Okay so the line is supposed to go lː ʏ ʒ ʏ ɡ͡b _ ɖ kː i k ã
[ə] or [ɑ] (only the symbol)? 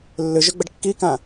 ə